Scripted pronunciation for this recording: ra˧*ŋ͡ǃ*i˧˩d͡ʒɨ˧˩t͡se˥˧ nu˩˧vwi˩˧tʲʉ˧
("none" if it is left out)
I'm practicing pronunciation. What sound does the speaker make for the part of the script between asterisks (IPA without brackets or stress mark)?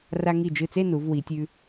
ŋ